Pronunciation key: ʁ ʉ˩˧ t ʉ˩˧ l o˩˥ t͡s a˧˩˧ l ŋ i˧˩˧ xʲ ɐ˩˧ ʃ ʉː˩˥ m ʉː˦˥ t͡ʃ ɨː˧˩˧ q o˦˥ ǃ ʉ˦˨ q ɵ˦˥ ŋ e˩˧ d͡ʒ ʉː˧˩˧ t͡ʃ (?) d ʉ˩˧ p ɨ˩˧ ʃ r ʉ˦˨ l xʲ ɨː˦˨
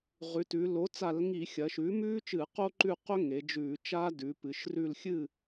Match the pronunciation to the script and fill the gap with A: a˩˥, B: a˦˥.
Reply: B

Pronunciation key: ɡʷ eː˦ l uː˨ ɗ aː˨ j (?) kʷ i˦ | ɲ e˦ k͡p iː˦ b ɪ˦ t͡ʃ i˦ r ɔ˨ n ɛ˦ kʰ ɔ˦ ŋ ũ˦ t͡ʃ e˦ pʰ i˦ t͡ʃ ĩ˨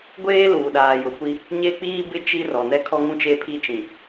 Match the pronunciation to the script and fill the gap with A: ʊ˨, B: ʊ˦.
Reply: A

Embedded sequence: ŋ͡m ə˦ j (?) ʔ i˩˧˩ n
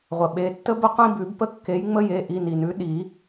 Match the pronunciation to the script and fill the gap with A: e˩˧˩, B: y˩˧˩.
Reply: A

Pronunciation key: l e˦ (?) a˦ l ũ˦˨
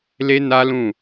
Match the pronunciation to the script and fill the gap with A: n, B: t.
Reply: A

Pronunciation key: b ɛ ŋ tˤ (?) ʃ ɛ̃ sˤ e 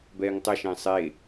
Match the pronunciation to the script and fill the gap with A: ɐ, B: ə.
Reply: A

